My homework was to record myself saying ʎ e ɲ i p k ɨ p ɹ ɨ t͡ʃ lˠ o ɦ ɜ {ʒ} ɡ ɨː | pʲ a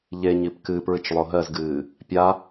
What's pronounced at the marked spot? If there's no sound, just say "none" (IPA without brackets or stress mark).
z